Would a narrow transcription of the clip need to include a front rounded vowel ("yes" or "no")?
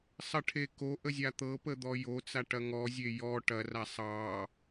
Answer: no